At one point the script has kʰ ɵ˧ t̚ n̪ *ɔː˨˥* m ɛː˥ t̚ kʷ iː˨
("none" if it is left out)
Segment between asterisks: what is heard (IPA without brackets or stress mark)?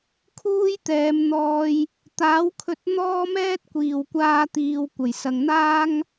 ɔː˥